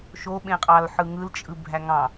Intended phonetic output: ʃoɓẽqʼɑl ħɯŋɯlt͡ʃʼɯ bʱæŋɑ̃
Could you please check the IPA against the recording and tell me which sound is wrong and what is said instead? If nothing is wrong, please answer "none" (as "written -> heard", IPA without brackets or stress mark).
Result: none